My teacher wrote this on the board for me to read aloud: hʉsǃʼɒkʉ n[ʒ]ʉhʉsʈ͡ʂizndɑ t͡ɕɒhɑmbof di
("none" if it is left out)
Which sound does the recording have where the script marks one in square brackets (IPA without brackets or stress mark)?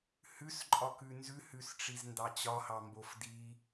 z